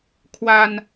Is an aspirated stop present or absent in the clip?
present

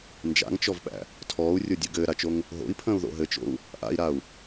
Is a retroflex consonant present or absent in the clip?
absent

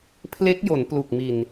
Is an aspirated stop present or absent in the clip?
present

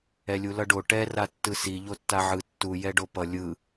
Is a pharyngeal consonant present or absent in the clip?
present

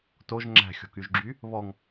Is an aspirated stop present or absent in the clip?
absent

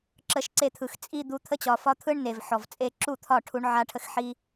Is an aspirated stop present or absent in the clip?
present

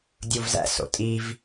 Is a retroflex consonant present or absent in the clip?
absent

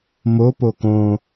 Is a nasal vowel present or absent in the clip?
present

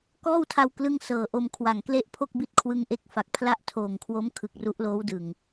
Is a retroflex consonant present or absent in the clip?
absent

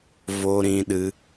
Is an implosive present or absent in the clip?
present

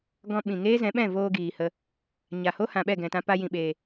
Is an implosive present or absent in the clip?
present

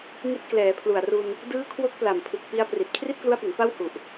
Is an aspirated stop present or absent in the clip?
present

